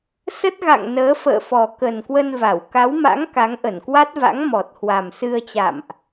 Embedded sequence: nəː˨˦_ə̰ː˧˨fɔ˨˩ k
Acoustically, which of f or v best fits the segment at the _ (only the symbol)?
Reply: f